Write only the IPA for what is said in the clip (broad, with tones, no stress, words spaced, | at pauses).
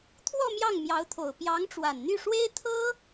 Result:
t̪ʰwɔ˥˧ mjɑ˥˩ŋmjɑ˧˥ʊ̯t̪ʰo˨˩ʊ̯ pjɑ˧˥ŋʈ͡ʂwa˨˩nn̪y˥˩ʂwe˥ɪ̯ t̪ʰɤ˥